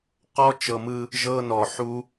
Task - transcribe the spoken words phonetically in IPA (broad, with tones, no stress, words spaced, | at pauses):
qɔ˧t͡ʃɤ˨mɯ˧ | ʒɤ˧nɔ˨ħu˧